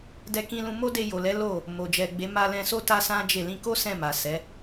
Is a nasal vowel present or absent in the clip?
present